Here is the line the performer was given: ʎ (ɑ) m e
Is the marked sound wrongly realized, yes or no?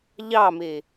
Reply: no